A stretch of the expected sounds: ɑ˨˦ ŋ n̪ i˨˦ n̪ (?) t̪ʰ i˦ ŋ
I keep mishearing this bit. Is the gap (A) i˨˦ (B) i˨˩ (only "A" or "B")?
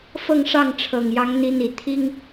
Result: B